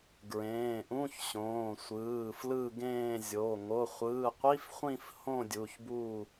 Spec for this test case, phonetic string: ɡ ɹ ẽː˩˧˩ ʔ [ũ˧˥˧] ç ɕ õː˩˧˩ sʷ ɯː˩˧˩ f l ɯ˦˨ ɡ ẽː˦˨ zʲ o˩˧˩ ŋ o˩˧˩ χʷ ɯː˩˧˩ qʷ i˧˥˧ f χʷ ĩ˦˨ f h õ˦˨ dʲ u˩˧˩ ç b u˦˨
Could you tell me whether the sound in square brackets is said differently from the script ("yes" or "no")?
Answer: no